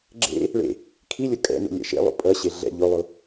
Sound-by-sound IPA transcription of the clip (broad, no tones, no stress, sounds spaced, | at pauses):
ɡ͡ǁ ḛ | ɭ ḛ | kʰ i lʲ o kʼ ɛ̰ n ṵ lʲ ɛ̰ ʃ ḛ lˠ ṵ pʼ ʌ ɕ e ɮ ɛ̰ ʎ o lˠ o